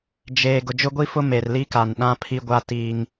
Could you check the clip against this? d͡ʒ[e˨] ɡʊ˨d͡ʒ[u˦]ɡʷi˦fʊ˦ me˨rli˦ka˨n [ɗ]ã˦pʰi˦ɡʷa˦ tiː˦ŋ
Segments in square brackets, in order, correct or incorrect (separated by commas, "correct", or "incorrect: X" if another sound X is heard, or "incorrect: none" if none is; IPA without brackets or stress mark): incorrect: eː˨, incorrect: ʊ˦, correct